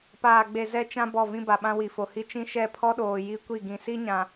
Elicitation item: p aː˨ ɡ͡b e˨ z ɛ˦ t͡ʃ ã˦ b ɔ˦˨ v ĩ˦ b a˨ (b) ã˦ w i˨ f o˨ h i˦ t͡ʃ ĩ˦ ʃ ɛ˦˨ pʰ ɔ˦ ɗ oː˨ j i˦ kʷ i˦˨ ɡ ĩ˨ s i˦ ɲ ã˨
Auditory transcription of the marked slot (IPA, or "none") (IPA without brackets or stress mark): ɓ